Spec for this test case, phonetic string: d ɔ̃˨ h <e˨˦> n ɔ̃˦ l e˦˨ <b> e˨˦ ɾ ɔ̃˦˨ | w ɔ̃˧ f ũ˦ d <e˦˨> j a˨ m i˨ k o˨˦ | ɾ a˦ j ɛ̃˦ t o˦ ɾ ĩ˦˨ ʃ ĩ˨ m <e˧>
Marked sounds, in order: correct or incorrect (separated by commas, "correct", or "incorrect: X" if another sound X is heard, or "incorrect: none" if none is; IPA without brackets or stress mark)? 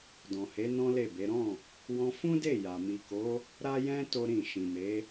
correct, correct, correct, incorrect: e˨˦